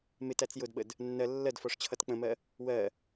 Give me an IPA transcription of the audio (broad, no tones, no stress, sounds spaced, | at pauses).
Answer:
m ɪ t æ t͡s j ʊ d ɓ ə d | nː ɜ lː ɜ d f ɔ ʂ t͡ɕʰ ʌ t k͡p ə̃ m ɜ | w ɜ